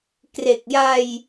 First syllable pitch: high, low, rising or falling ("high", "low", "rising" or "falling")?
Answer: low